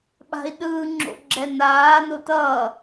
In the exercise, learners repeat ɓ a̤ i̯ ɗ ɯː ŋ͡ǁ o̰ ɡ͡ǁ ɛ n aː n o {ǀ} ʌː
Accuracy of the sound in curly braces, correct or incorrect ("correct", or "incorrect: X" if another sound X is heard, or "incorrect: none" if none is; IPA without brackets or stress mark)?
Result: incorrect: t